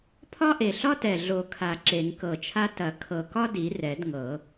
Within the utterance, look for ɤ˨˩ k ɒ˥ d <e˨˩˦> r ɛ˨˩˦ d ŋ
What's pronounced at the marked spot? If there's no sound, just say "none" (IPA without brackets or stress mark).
i˨˩˦